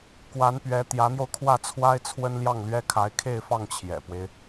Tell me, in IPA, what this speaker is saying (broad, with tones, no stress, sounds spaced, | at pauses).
k w a˧˥ n p ɥ ɛ˧˥ t̪ j ä˧˥ n̪ j o˧ ʊ̯ kʰ w ä˥˩ t͡sʰ w a˥ ɪ̯ t͡sʰ w ə˥ n l j ɑ˥˩ ŋ l ɥ ɛ˥ kʰ a˧˥ ɪ̯ kʰ e˥˧ ɪ̯ f ɑ˥˩ ŋ t͡ɕʰ j ɛ̰˨˩ p w e˦ ɪ̯